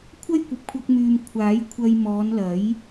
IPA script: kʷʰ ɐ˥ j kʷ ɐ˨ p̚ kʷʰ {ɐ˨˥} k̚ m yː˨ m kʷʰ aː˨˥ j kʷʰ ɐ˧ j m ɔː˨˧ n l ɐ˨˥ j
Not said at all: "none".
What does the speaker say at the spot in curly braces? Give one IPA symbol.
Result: ɐ˧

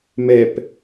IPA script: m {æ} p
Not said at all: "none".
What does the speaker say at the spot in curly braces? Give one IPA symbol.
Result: ɛ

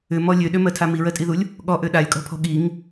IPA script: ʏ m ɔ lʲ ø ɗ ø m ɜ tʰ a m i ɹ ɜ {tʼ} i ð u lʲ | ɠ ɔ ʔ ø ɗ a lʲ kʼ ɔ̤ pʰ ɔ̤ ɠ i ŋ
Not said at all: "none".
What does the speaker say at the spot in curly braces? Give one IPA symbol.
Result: tʼ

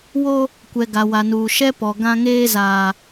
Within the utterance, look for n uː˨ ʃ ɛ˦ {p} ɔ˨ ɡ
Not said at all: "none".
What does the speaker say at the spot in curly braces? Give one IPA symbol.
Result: p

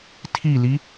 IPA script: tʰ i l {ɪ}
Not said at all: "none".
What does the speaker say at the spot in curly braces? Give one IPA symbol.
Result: i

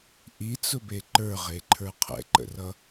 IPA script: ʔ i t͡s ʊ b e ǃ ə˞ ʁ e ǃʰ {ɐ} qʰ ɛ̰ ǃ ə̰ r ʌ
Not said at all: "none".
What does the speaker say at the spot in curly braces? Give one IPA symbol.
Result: ə˞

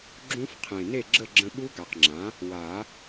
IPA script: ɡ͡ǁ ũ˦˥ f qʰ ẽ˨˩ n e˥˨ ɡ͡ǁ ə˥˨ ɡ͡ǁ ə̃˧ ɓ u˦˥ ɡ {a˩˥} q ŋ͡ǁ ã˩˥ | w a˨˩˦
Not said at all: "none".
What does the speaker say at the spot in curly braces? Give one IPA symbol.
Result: a˨˩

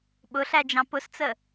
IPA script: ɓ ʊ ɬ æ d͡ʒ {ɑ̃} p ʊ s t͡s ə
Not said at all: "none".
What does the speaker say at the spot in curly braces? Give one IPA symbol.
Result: ɑ̃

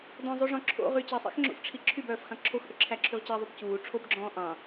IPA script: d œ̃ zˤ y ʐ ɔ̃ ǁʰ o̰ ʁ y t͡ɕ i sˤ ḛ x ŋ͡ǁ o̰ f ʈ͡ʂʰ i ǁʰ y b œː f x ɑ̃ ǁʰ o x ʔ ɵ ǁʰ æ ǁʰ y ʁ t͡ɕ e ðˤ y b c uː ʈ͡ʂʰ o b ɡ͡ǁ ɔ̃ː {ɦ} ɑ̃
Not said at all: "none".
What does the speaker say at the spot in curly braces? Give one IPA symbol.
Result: ʔ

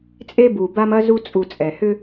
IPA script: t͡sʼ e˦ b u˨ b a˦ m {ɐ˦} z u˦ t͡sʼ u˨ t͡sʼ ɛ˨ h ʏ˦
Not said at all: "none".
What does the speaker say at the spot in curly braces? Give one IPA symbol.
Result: ɐ˦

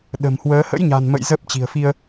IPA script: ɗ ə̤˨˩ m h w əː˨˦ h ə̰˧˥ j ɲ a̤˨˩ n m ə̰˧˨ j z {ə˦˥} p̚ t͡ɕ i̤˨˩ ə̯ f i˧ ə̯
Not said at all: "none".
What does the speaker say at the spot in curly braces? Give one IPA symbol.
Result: ə˦˥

